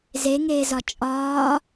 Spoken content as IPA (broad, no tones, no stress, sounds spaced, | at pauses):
z e ŋ eː z ɒ t͡ʃʼ ɒː